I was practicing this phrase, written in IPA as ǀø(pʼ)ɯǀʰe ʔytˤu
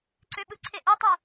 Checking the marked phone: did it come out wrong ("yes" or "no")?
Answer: yes